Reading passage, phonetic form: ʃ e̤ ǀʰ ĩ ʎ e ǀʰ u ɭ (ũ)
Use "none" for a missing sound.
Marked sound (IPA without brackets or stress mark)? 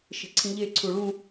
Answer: ũ